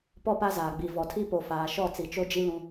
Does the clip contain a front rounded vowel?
no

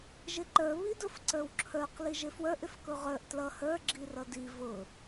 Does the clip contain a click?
yes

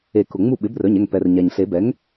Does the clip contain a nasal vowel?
no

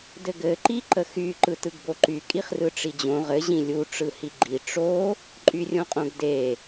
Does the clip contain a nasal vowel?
yes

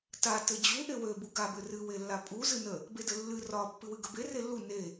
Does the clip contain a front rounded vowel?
yes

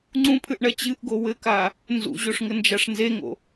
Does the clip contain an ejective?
no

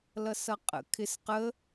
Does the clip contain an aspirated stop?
yes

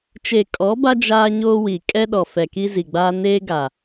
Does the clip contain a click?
no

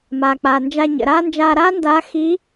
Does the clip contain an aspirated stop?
no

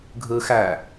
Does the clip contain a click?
no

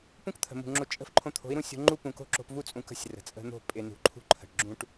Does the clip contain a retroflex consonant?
yes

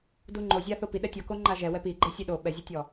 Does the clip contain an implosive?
yes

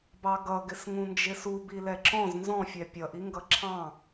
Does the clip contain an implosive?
no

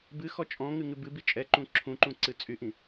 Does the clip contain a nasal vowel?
yes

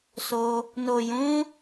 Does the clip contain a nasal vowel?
yes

